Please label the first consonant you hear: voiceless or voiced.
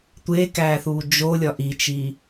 voiceless